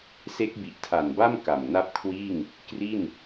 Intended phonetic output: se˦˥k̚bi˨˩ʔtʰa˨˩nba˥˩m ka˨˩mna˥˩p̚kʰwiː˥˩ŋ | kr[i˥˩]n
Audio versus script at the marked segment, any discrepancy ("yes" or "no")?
no